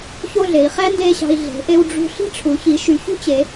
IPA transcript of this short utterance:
ço˥˧ɮe˩˧i̯χæ˥ nde˥˧ɕɑ̤˧i̯ ɮe̤˩˧ ʔe˧wɖ͡ʐṳ˧ ɬi̤˥˧ʈ͡ʂʰu˩˧çi˩˧ʃy˩˧ çṳ˥t͡ɕe˩˧

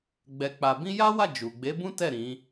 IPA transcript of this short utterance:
ɡ͡bɛ˧k͡pa˧ bĩ˦ ja˦wa˦˨ d͡ʒu˨ ɡ͡be˨˦bũ˦tɛ˦˨ ɾĩ˨˦

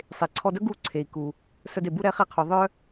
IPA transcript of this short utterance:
sˤe˩ǀʰɔ˧dœ˥ ɡu˧ ǀʰe˩i̯ku˩ | sœ˧de˩bu˥ ɾɛ˥ χe˧qʰu˩ ðˤœ˥

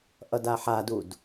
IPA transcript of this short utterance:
ʔʌdaħadud

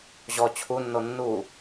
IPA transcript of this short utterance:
ʑɔ t͡ɕʰunːo nːu

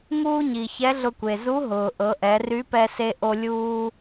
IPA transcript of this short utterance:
ŋuː˥ɲi˩ çɛ˧˥ɮʊ˧kʷe˩ zu˧˥ ɦʊː˩ʔɤ˩˧ʔɛ˩˧ ry˧˥pɛ˧se˧ʔo˧ lʲuː˧

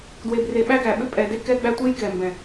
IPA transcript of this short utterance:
dwe˨bre˨ɓæ˦ɡæ˨ ɓʏ˦pʼɛ˨de˦ kɛ˦ɡ͡bæ˦ tʷe˦jkɛ˨mbɛ̃˨

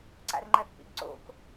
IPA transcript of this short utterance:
ǀa̰rŋ͡ǃɐθpḭɡǀo̰k

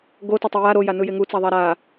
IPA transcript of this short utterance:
ɡotʌtˤɛ ja ɾojanɯje ŋut͡saðˤa ɾa

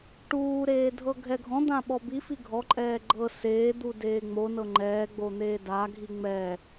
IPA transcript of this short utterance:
ʈuːɾeː dʱɤɡʱɛɡʱɔ̃d̪ã ɓɔbifi ɡʱɔǃʼɛː ɡ͡ǃɤ seːd̪u deːŋ͡monɤ ŋ͡ǃɛːɡ͡bo n̪eːdaɡʱi ŋ͡mɛ

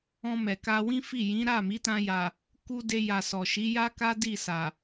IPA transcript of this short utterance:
ɔ̃˧mɛ˨ka˧ wĩ˦fi˦˨jĩ˨˦ ɾa˦˨mi˨˦ tã˧ja˨ | ku˧ de˧ ja˨ sɔ˨ ʃi˨˦ja˦ka˦ di˦˨sa˨

